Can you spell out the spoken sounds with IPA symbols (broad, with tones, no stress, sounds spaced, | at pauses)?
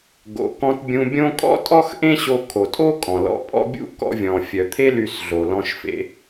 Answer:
ɡ o̰˩ k ɔ̃˧ t bʲ ũ˧ bʲ õ˥ kʼ ɔ̰˥ tʼ ɔ˥ x ʔ ẽ˥ ɕ o˧ kʰ o˩ tʼ o˥ kʼ ɔ̃˩ l ɔ̰˧ pʼ ɔ̰˥ bʲ ṵ˥ k ɔ̰˧ vʲ ɔ̃˩ fʲ œ˩ t̪ʰ e˥ l y˧ s ɮ o˩ l ɔ̃˧ ʃ f ḛ˧